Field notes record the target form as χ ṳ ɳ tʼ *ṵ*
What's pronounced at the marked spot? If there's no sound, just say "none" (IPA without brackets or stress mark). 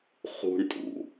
ṵ